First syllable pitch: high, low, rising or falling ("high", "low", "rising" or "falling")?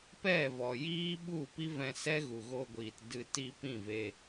falling